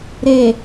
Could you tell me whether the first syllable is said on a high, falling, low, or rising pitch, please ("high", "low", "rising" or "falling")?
low